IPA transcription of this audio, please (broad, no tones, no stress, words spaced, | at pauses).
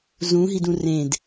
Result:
zũɦidũ rẽd